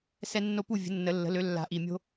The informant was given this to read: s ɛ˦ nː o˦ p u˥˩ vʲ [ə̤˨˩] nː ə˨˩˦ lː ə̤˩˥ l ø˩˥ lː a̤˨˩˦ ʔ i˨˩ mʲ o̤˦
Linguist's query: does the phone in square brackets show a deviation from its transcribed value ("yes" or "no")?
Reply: yes